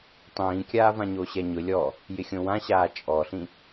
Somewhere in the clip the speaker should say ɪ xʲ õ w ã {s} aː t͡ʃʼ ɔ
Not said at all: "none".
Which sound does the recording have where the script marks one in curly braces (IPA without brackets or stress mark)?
ɕ